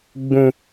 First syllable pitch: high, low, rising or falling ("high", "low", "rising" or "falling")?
high